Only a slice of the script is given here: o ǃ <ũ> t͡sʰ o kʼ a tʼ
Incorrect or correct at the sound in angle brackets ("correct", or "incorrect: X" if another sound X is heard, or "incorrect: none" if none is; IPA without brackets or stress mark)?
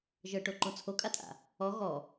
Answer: correct